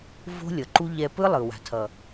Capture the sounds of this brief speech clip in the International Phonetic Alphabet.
v o̤˦ lʲ ʌ˨ ǃ u˦ ʎ ɛ˧ p ɯ˦ lˠ ɯ˨ w a̤˨ tʰ ʌ˨

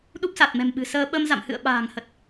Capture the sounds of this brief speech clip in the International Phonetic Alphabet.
ɗ u˦˥ p̚ s a˨˩ t̚ m ɛ̤˨˩ m ɓ ɨ̤˨˩ s əː˧ ɓ ə˧ m z a̰˧˨ m h ɨ̰˧˨ ə̯ ɓ a̤ː˨˩ ŋ h ə˨˩ t̚

